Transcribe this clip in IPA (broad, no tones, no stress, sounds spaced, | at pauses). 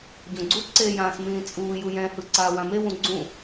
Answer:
ɟ õ ɡ͡ǀ u ǀ eː j ãː s m ĩː t͡sʼ uː j u j ɛ̃ h ɯ ǀ aː w ã m e w ũ ɡ͡ǀ ũ